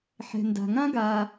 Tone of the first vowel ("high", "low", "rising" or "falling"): low